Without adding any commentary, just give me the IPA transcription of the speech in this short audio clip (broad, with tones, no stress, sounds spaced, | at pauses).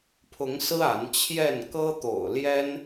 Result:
pʰ ʊ˨˦ ŋ s ɹ̩˦ a˨˦ n t͡ɕʰ j ɛ˥˨ n k ɤ˦ t̪ o̰˨˩ ʊ̯ l j ɛ˦ n